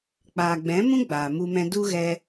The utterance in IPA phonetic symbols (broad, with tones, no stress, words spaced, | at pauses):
k͡paː˨ɡ͡bɛ̃˨˦mũ˦ ɡ͡baː˨mu˧mɛ̃˧ du˦ ɣɛ˧